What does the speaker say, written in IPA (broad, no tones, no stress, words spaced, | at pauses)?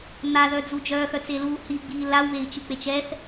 n̪aðœd͡zu d͡ʒœːxœt͡seluː hiɡ͡biː lawβei̯t͡ʃik͡pet͡ʃ ɛθ